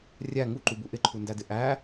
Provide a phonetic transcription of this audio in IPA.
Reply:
rʲ æ ŋ u ǃ u b u ʔ ɪ ǃʰ u n d æ d ɪ ʔ æ

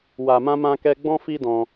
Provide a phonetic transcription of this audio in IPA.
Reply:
w a˨ m ã˧ m ã˧ k ɛ˧ ɡ͡b ɔ̃˦ f i˦ d ɔ̃˧

